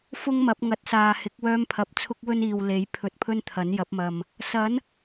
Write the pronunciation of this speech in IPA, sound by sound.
f ʊ˥ ŋ m ɐ˨˥ p̚ ŋ ɐ˨ t̚ s aː˨ h ɪ˨˥ k̚ w œː˥ m pʰ ɐ˧ p̚ t͡sʰ ʊ˥ k̚ w ɵ˥ n iː˨ w l e˨˥ j pʰ ɵ˧ t̚ pʰ ɵ˥ n t̪ʰ ɐ˨˥ n j ɐ˨˥ p̚ m ɐ˨ m | s ɐ˨˥ n

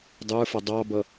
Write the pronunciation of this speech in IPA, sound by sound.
dˤ ə˞ f ʌ dˤ ɑ b ʌ

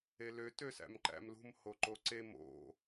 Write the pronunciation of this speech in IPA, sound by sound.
e l ø t ø s æ̰ m ǃ æ̰ m l ṳ m h o ǃ o ǀ e m o̰

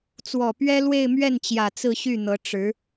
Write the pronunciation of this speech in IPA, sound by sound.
t͡s w ɔ˨˩ p ɥ ɛ˥ l w e˥˧ ɪ̯ m ɥ ɛ˥˩ n t͡ɕ j ä˨˩ t͡s ɹ̩˥˧ ɕ y˥˩ n̪ ɤ˧˥ ʈ͡ʂ ɻ̩˧˥

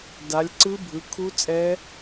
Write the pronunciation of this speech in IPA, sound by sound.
d a˨˦ lʲ ǀ ɯ˦˥ bʱ ɯ˨˦ kʰ u˦˥ t͡sʼ ɛ˦˥

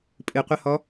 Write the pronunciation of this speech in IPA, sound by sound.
pʼ ɨ qʷ ə h ɔ

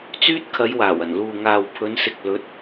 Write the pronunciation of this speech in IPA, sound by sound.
t͡s yː˥ t̚ kʰ ɐ˨˧ j w aː˨˩ w ɐ˨˩ n l uː˨ ŋ aː˨ w pʰ ɵ˨˧ n s ɪ˨ k̚ l ɵ˨˥ t̚

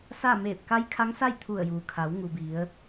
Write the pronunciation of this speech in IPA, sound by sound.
s a˥˨ m eː˧˩ p̚ k a˧˥ j kʰ a˧˥ ŋ s a˥˨ j t̪ʰ u˧˩ ə̯ j uː˩ kʰ a˩˧ w ŋ u˩ b i˩˧ ə̯

